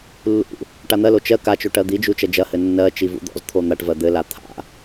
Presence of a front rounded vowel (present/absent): absent